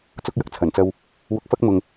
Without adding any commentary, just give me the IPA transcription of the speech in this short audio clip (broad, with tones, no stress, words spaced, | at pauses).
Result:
t͡sʊ˥k̚jɐ˧k̚t͡sʰɐ˨˩nt͡sɐ˧w | wʊ˧k̚fɐ˥k̚mʊ˨ŋ